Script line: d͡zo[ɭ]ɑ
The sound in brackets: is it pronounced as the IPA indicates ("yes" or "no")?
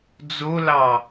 no